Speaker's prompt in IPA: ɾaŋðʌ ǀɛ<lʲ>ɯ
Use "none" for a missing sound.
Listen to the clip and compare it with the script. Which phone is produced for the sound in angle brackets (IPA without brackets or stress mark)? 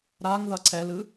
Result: l